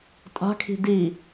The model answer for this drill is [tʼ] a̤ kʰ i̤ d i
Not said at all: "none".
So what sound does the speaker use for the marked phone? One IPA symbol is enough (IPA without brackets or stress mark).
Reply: tʼ